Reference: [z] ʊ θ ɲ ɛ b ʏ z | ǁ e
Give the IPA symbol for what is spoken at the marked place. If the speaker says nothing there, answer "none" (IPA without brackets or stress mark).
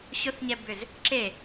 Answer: ɕ